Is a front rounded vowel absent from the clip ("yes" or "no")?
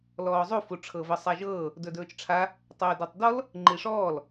yes